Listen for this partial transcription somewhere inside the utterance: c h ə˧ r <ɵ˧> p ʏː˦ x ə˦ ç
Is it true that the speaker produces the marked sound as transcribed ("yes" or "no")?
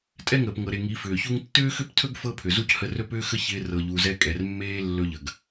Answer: no